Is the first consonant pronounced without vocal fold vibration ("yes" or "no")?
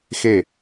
yes